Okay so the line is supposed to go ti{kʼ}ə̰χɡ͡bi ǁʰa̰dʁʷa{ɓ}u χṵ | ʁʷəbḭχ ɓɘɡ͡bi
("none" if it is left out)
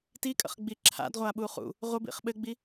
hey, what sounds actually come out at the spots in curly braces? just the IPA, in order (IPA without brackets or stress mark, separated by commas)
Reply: kʼ, ɓ